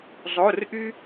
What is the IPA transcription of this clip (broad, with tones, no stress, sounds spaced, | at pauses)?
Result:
zˤ o˩˧˩ r ʔ y˧